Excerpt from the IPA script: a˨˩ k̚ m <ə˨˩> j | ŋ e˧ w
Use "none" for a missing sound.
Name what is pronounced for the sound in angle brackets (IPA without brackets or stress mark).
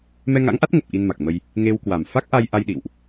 ə˧